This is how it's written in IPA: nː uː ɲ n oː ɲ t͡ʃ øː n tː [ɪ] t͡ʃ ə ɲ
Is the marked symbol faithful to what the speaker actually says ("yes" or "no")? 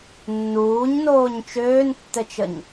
no